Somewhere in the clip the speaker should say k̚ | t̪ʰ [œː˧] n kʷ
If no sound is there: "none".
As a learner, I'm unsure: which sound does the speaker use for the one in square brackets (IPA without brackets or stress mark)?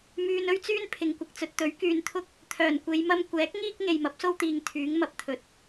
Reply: œː˨˩